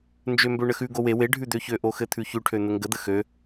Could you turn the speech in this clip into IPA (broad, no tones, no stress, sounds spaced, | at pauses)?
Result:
n d͡ʒ ø m b ø ɳ ə x ʉ ɡ o w e w e ɖʱ ʉ d̪ ø ç ø ʔ o x ɘ t̪ʰ ʉ ç ʉ ʈʰ ø n̪ ə ŋ ɡ ə d̪ ə x ø